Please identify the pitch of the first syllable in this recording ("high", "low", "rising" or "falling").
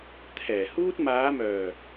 low